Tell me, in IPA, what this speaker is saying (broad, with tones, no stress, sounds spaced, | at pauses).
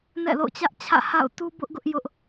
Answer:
n ɛ̰˦˨ l o̰˦˨ ʊ̯ t͡ɕ ä˦ ʔ t͡ɕʰ ä̰˦˨ h a̰˦˨ ʊ̯ t u˦ b ʊ˦ ʔ ɡ ʊ˦ ʔ j ʊ˦ ʔ